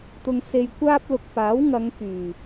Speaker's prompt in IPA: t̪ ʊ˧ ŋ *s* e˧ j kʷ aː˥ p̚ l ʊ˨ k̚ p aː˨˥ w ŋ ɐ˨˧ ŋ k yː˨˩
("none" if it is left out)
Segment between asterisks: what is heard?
s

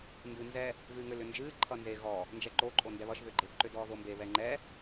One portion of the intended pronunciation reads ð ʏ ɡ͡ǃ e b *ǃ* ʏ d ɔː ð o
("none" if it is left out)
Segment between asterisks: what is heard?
ǃ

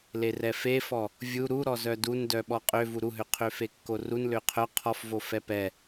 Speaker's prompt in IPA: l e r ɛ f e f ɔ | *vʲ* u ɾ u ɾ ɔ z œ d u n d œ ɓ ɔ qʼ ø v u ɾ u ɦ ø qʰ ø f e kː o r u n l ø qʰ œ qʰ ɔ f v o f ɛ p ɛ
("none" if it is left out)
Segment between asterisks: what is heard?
vʲ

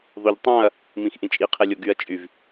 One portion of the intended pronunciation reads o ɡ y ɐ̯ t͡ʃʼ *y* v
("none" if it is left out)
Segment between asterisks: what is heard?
y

